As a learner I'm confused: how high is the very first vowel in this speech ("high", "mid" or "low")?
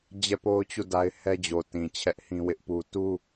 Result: mid